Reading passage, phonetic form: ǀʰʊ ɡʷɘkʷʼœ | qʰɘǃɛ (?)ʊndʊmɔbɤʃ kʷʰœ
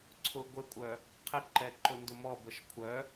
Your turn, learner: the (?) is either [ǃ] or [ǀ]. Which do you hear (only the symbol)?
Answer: ǃ